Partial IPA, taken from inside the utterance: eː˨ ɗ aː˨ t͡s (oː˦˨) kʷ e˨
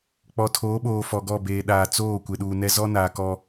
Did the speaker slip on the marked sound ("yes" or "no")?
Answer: no